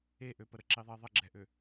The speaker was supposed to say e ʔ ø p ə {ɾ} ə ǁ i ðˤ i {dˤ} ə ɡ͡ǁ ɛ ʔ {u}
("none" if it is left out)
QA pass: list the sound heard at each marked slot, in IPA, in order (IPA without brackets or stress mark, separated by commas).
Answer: ɾ, ðˤ, ø